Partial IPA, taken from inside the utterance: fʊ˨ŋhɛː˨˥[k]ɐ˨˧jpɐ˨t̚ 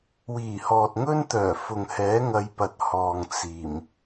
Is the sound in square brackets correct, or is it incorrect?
incorrect